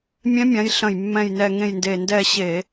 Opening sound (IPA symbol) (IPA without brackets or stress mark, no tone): mʲ